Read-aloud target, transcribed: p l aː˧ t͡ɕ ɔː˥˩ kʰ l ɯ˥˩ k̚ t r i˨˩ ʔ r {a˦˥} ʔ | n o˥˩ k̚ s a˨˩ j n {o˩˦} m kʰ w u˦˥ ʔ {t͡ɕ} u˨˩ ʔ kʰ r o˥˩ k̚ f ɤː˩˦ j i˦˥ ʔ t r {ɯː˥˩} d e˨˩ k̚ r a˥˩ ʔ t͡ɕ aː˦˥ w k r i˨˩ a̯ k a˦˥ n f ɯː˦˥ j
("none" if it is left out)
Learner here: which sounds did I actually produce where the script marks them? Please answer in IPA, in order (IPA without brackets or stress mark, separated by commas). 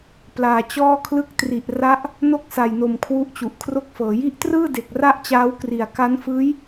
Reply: a˦˥, o˨˩, t͡ɕ, ɯː˥˩